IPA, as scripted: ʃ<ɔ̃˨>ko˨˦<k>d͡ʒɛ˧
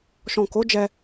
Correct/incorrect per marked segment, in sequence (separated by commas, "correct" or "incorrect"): correct, incorrect